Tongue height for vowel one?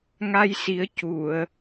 low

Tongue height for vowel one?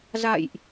low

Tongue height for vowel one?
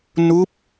high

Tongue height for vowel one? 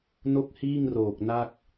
mid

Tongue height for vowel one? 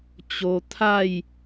mid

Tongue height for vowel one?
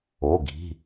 mid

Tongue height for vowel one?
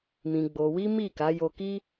high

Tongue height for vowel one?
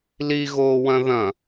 high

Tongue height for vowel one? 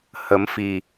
mid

